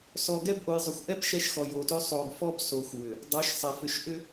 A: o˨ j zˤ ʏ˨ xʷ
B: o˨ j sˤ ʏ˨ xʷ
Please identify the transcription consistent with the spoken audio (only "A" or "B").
A